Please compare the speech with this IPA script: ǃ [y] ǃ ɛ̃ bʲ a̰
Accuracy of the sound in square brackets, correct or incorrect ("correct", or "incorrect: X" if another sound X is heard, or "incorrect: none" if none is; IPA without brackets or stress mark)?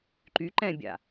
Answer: correct